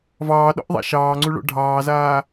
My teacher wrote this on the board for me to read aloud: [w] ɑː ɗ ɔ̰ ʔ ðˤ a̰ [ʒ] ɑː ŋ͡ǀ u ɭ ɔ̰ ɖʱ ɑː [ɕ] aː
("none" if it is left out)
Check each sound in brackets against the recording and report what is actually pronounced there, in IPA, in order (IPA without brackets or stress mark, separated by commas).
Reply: v, ʃ, z